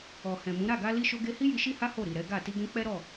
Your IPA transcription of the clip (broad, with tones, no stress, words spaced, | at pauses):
ɔ˨hɛ̃˨mũ˨˦ ɾa˦˨ɡa˧ li˧ʃo˧ɡe˧hi˦ ji˧ʃi˦ha˦ ho˦˨ ɾi˨ɾɛ˨˦ɡa˦˨ ti˧ɡɛ̃˧k͡pɛ˦ɾɔ˦˨